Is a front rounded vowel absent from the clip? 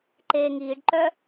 no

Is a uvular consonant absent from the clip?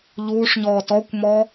yes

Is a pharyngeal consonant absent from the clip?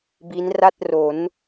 yes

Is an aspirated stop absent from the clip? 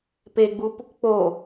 yes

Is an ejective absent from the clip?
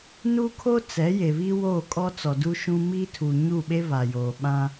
no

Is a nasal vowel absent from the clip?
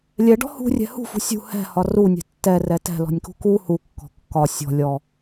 yes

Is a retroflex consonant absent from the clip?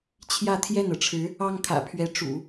no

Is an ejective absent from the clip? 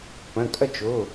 no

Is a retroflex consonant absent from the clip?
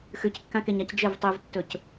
yes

